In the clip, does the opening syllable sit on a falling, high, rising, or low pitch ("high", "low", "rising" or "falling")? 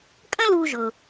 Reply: high